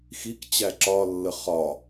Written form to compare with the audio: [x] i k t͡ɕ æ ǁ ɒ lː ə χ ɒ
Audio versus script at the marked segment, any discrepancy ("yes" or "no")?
no